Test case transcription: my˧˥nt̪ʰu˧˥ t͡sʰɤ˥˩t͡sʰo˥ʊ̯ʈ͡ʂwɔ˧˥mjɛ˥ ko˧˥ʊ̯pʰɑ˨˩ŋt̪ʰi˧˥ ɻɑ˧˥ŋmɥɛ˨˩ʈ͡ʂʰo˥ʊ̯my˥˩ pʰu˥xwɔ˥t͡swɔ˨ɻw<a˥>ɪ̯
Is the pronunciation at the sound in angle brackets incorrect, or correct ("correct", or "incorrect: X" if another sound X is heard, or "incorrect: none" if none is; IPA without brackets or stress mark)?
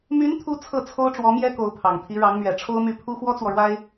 correct